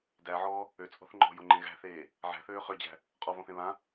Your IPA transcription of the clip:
d æ ʕ ɔː | ø t͡sʼ ɔ̤ θ ŋ͡ǃ ɔ̤ j o ŋ͡ǃ ẽ ɣ æ̤ θ eː | ʕ æ̤ θ øː χ ø d͡ʑ æ̤ | qʼ ɔ v ɔ̃ θ ẽ β ã

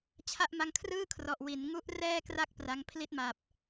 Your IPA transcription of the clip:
t͡ɕʰ a˥˩ ʔ m a˦˥ ŋ kʰ r ɯː˥˩ kʰ r ɔ˨˩ ʔ w i˩˦ n ŋ u˦˥ ʔ r ɛː˥˩ k r a˥˩ k̚ p r a˦˥ ŋ pʰ l i˥˩ t̚ m a˨˩ p̚

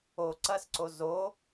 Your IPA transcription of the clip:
o ǀ ɐ s ǀ o z o

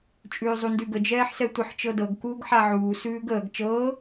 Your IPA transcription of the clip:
t͡ʃʼ ʉː zˤ u n d ʉ ɡ ə d͡ʒ ɛː ħ s ɛ tʷ ə ħ t͡ʃ ɤ d ɤ ɡ k uː ɡ ħ a ʕ uː s ʉː ɡ əː ɡ t͡ʃ ɤː

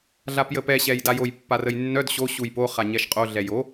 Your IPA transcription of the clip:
ɮ a p j ə p ɛ ɕ ɛ j d a j o j pː a r ə j nː œ d ɕ o ɕ u j p o χ a ɲ ɛ ʃ qʼ o ɮ ɛ j o

